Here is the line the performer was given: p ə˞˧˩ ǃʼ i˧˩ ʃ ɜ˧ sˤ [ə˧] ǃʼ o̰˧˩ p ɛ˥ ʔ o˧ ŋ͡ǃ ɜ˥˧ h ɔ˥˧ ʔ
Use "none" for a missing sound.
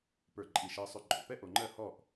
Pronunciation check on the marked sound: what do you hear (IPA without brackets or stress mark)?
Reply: ʏ˧